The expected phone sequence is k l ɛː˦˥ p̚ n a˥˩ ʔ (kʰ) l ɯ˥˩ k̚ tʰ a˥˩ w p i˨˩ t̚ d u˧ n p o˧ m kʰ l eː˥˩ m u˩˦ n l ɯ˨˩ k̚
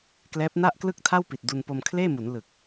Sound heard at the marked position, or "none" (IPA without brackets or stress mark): k